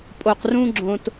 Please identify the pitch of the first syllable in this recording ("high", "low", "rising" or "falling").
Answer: low